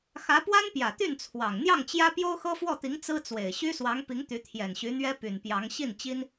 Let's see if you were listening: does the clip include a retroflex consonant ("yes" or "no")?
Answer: no